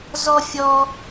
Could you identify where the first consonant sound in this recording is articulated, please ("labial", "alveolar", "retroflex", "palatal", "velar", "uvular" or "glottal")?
alveolar